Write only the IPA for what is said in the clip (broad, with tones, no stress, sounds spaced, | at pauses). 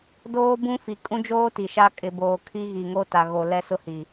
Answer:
d oː˦ b ũ˦ f i˨ kʼ ũ˦ d͡ʒ oː˦ t i˨ ʃ a˦ kʼ ɪ˨ b oː˨ kʰ i˦ ɣ i˨ ŋ o˦ t a˨ ɣ o˨ l ɛ˦ s ʊ˦ h i˨